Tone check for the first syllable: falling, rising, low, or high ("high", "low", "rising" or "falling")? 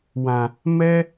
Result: low